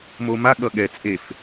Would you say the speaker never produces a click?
yes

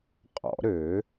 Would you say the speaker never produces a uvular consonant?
no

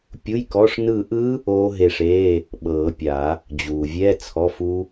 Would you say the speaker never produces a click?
yes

